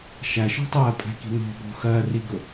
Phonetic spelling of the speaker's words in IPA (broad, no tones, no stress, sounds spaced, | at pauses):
ʃ æ ʃ ɔ̤ tˤ ɜ pʼ æ̤ k i̤ n ɔ̤ b ɔ̤ x ɜ r i ɡ ʊ